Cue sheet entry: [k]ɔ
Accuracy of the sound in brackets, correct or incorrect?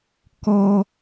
correct